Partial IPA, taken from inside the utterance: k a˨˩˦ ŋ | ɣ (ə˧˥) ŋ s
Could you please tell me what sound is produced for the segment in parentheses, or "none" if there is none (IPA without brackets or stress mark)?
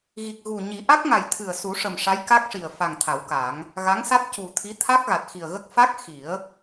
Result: a˧˥